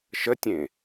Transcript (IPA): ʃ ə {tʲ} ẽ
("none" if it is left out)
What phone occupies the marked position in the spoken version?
tʲ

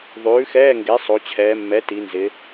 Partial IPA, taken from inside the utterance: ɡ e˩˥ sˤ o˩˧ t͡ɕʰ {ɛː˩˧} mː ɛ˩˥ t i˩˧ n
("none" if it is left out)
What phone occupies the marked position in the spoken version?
ɛː˩˧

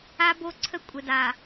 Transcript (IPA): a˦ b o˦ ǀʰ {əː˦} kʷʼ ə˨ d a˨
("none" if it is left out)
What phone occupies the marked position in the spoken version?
ə˦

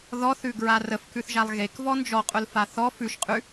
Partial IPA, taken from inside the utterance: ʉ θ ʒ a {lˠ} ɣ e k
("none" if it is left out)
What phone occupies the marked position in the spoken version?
lˠ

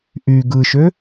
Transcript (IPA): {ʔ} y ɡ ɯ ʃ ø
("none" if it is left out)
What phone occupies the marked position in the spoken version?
ʔ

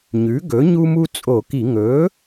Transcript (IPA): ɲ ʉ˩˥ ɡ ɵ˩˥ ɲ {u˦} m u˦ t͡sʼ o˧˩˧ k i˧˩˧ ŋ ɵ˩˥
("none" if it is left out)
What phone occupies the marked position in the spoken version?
u˦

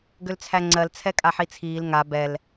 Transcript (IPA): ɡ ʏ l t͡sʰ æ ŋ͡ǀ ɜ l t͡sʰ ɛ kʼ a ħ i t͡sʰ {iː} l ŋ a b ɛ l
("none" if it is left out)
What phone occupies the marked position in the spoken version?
iː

